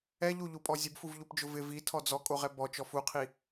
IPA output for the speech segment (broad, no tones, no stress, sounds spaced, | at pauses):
ɛ ʎ u ʎ u pʼ ɔ zʲ ʊ b f u v ʎ u p d͡ʒ ʊ v ɪ v i tʰ ɔ d͡z ɔ kʼ o ʁ ɛ b ɔ t͡ʃ ɔ f u qʰ i